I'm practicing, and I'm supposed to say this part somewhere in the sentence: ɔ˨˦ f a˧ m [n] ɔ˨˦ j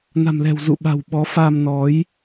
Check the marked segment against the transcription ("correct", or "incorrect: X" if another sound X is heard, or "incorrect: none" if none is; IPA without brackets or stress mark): correct